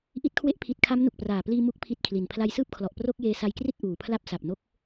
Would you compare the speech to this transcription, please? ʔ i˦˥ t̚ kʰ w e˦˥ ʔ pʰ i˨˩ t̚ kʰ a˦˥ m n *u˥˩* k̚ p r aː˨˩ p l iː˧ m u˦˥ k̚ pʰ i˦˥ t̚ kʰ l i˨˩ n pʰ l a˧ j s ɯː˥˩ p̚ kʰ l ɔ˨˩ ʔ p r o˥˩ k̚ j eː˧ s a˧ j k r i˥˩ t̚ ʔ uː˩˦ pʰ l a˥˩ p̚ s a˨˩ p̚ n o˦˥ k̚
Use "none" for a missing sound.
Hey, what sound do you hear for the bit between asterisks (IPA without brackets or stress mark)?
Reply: u˨˩